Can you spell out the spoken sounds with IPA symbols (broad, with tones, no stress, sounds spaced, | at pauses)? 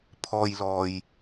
pʰ ɔː˧ j l ɔː˨ j